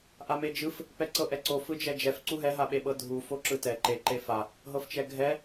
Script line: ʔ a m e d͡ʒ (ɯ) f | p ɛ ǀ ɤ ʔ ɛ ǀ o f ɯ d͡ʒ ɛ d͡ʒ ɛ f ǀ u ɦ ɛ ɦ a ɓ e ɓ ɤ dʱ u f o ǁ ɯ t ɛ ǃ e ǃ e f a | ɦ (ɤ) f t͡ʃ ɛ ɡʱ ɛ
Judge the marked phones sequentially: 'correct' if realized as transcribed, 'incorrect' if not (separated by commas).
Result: correct, correct